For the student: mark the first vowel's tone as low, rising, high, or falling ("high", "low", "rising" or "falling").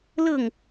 falling